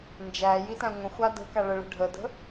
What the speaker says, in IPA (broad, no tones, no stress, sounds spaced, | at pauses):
n d͡ʒ æ j i t æ̃ ŋʷ ə̃ xʷ a d ə̤ k a ɭ ə ɭ ə̤ ɖʱ ə d ə̤